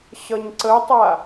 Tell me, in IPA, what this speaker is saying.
ɕ ʌ ɲ ǀ ə tˤ a

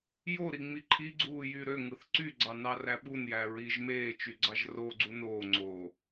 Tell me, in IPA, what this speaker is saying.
j o ɾ i ŋ͡m i ǃʰ i ɡ͡ǀ uː j y ɾ ø ŋ ɯ θ ǀ y ɡ͡ǀ ɑ n ɑ r æ ɓ u n j æ ɹ i ʒ m eː t͡ʃ y ɡ͡ǀ ɑ ʒ r o ɡ͡ǀ u n oː ŋ͡ǀ oː

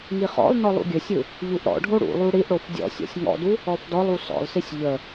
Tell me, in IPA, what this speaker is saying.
ŋ i χ ɔ̰ lˠ n ɔ lˠ ṵ ɡʲ ɘ sʲ ɯ | ʎ u ʔ ɾ ɔ̰ ɖʱ o ɽ ṵ lˠ u ɽ i ʔ ɽ o f dʲ ɔ̰ sʲ ɔ̰ sʲ ŋ ɔ̰ d u | ɔ f d ɔ lˠ u s ɔ̰ lˠ s i sʲ ʎ ə

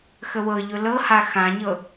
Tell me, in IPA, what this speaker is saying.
x ə w ɤ ʎ ʊ l ɤ h a x ã ɲ ɤ

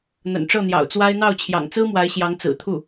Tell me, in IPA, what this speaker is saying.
n̪ ə̰˨˩ n ʈ͡ʂ ɤ˥˩ n̪ j ɑ̰˨˩ ʊ̯ t͡s w a˥ ɪ̯ n̪ ɑ˥˩ ʊ̯ t͡ɕʰ j ɑ̰˨˩ ŋ t͡s ɹ̩˥ m w a˧˥ ɪ̯ ɕ j ɑ˧˥ ŋ t͡s ɹ̩˨˩ t̪ʰ u˥˩

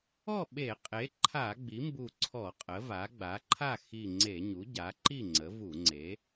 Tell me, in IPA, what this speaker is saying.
ɔ˥˨ ɓ e˧˩˧ qʼ e˩˥ ǃʰ a˧˩˧ ɡ͡b i˩˥ m b u˧˩ ǀʰ ɔ˧˩˧ qʼ ə˩˥ v a˩˥ ɡ͡b a˩˥ ǃʰ a˥˨ x i˧˩ ŋ͡ǀ e˧˩˧ ɲ u˩˥ ɟ a˩˥ ǃ i˥˨ ŋ͡ǀ ə˩˥ v u˧˩˧ ŋ͡ǀ e˩˥

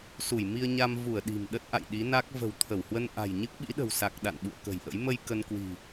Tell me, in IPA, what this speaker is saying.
s u˧˩ j m i˧ ə̯ ɲ a˧ m v u˧˩ ə̯ ɗ i̤˨˩ m ɗ ə˦˥ t̚ ʔ a̰˧˨ j ɗ i˨˦ n a˦˥ k̚ v ə̤˨˩ w t̪ʰ ə˧˩ w h w ə˧ n ʔ a̤˨˩ j ɲ ɨ˦˥ k̚ ɓ ḭ˧˥ ɗ ə̤˨˩ w s a˨˩ k̚ ɗ a̰˧˨ n ɓ ṵ˧˨ ə̯ k ə̤˨˩ j ʔ ə̰˧˥ j m ə˧ j k ə˧ n k w i̤˨˩

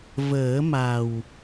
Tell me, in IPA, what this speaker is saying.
v əː˨˩˦ m a˨˩ w

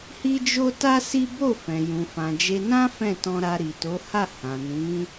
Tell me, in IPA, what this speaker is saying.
h i˦ d͡ʒ o˦ t a˦ s i˦ b o˦˨ f ɛ̃˨ j ũ˨ f ã˨ d͡ʒ e˧ n ã˦ f ɛ̃˦˨ t ɔ̃˧ ɾ a˧ ɾ i˨ t o˨˦ h a˦˨ h ã˨ n ĩ˨˦

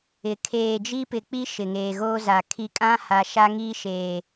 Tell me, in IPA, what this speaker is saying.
ɪ˨ kʰ eː˨ d͡ʒ i˦ p ɪ˨ k͡p i˦ ʃ ɪ˨ ŋ eː˨ ɣ oː˦ z a˨ kʰ i˨ kʼ ã˦ h a˨ ʃ a˦ ŋ iː˦ ʃ eː˨

